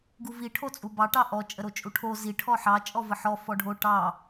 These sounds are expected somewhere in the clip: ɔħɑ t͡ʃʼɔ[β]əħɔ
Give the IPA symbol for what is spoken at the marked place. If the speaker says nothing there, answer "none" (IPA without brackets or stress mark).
v